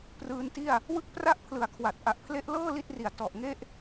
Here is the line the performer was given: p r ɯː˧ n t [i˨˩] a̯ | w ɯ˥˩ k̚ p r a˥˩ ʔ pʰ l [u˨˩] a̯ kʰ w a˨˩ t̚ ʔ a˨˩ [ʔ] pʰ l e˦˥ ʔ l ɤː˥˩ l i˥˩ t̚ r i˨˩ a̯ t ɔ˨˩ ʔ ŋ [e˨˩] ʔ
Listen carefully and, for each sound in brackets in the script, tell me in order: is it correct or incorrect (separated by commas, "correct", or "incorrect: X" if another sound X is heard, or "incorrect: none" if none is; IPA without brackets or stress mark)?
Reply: incorrect: i˥˩, incorrect: ɯ˨˩, correct, incorrect: e˥˩